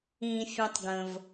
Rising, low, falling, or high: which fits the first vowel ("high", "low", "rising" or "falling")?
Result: low